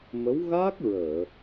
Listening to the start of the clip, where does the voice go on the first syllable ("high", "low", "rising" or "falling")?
rising